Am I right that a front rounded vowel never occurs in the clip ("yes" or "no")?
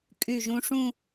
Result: no